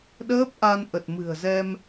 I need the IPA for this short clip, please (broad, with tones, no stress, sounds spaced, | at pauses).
ɗ əː˦˥ p̚ ʔ a˧ n ʔ ə˨˩ t̚ m ɨ̤˨˩ ə̯ z ɛ˧ m